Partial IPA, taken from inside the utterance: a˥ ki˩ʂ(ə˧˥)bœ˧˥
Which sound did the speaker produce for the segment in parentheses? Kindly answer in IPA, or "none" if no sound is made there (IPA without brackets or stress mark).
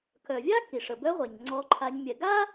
ə˩